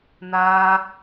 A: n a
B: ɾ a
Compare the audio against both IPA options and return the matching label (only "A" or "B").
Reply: A